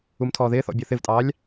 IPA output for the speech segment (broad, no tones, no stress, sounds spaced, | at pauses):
u m tʰ ɔː ð ɪː θ ɔ̰ bʲ ɔ θ ɪ v tʼ ɑː lʲ